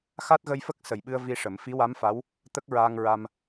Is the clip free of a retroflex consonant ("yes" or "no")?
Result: no